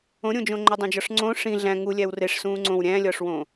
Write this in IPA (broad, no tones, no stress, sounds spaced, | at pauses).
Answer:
õ ɾʲ õ d͡ʒ õ ŋ͡ǃ o dˤ ẽ d͡ʒ ɒ ʂ ŋ͡ǀ õ ʂ ĩ ɮ æ̃ ŋ u lʲ æ w r e ʂ s ũː ŋ͡ǀ õ w ɾʲ æ̃ː lʲ ɒː ʂ w õː